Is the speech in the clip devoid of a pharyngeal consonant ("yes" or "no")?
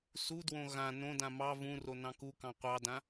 yes